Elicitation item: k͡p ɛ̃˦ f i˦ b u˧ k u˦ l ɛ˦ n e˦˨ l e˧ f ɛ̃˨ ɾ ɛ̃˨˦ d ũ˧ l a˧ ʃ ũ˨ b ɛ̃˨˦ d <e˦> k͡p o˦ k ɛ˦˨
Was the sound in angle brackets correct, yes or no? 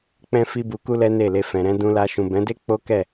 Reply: yes